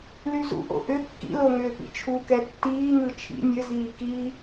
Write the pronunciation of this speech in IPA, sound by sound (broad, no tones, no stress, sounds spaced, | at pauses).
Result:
l y z ṵ ʔ o̰ ʔ ʏ kː ḭ l o ŋ ʏː p ḭ t͡ʃʰ u k ɛ tː iː ŋ ɯ t͡ʃʰ ḭ nʲ ɘ z iː k i